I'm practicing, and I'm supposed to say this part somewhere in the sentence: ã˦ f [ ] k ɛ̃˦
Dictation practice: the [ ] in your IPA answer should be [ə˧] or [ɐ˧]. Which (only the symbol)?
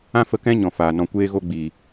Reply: ə˧